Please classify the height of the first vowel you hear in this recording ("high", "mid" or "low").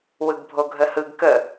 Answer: high